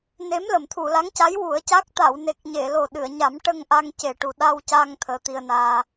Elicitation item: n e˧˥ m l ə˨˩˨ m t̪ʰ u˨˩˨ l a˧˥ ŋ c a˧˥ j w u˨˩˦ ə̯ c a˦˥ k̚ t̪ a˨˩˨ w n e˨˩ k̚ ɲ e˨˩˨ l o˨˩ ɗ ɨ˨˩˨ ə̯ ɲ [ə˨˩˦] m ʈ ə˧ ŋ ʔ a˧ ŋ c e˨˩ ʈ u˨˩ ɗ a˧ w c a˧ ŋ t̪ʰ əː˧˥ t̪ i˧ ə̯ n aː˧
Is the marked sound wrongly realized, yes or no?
yes